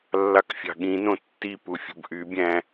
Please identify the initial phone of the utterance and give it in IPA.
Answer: lː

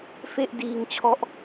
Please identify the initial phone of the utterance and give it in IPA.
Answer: f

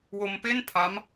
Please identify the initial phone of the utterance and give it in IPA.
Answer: w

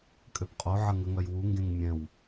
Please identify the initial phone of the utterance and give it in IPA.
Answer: kʼ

